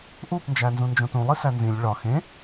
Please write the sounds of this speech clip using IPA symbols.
ʔ u p n d͡ʒ æ n z ũ n d͡ʒ õ t ũ lˠ i s æ n z ĩ lʲ ɭ ɒ x ẽ

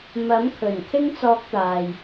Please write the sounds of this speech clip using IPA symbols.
m ɐ˨˥ m kʰ ɵ˨˩ n kʰ ɪ˥ ŋ t͡s ɔː˧ k̚ t̪ aː˨ j

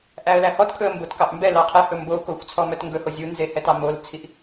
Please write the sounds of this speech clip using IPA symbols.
ʔ æ ə̯ l æ h ɔ t kʰ ɵ ə̯ m b o t k ɑ ʔ m b ɛ l ɑ qʰ ɛ h ɵ m b o k o xʷ t͡sʰ ɔ m œ t ŋ ɡ ɵ h o zʲ u n z e h ɛ t ɑ m o l t͡sʰ i ʔ

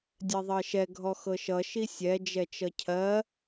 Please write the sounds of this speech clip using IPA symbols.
dʲ ɛ ðˤ ɜ ʃ ɛ ɡʱ ɔ x ɤ ʃ ʌ ʃ i sʲ ɛ d͡ʒ ɛ t͡ʃ ʌ cʰ ɜ

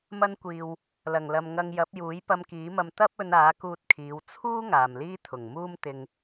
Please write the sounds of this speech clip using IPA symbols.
m ɐ˧ n kʷ iː˨ w | l ɐ˨˩ ŋ l ɐ˨ m ŋ ɐ˧ ŋ j ɐ˨˥ p̚ j uː˨˥ j p ɐ˧ m k iː˨˥ m ɐ˧ m t̪ ɐ˥ p̚ ɵ˧ n aː˨˥ k uː˧ t̚ kʰ iː˨˧ w t͡sʰ uː˥ ŋ aː˨ m l iː˥ t̪ʰ ʊ˨˩ ŋ m uː˥ m t̪ ɪ˧ ŋ

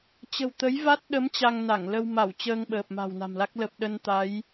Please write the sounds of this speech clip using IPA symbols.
t͡ɕ ə̤˨˩ w t̪ ə˨˦ j v a˦˥ t̚ ɗ ə˨˦ m t͡ɕ a˧ ŋ n a˧˩ ŋ l ə˧ w m a˧˩ w t͡ɕ əː˧ ŋ ɓ əː˨˩ p̚ m a̤˨˩ w n a̤˨˩ m l a˦˥ k̚ l ə˨˩ p̚ ɗ ə˧ n t̪ a˨˦ j

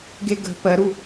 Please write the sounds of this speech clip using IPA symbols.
ɡ e ɡ ə̤ p ɜ ɾ u

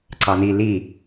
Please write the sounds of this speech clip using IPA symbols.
ǀ ɑ n i l i

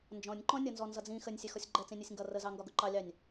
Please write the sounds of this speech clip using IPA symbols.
n d͡ʒ ɔ̃ nʲ ǃ ɔ̃ nʲ ʌ n z ɔ n z ʌ d͡z ĩ x ə nʲ sʲ ɛ x ɔ sʲ ɡ͡ǃ ɛ t͡s ĩ nʲ ɜ sʲ ŋ ɡ ʌ r ə z ɑ ŋ ɡ ɒ ɡ ʊ ǃ ɑ lʲ ɑ nʲ

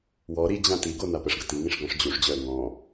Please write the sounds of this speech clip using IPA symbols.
w ɔ ɾ i d͡ʑ ã t i ɡ o n a p ə ʂ ɡ ə t i ŋ ĩ ʂ ɡ ɔ̃ ʂ d͡ʑ u ʂ d͡ʑ œ ə̯ ŋ ɔ̃

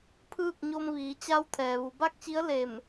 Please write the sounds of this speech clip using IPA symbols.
pʰ ɯː˥˨ k̚ ɲ o˧ m ʋ iː˩˧ t͡ɕ a˧˥ w t̪ʰ ɛː˩ ʋ u˩ b a˥˨ k̚ t͡ɕ i˧˥ ə̯ l e˧˩ m

